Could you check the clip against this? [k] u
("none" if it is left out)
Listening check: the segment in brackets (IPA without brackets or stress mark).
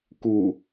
k